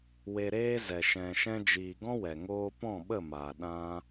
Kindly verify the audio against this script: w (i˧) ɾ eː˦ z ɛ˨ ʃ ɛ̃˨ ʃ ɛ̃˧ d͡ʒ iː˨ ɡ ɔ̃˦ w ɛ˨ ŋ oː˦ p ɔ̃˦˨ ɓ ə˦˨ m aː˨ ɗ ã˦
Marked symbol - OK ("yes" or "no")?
no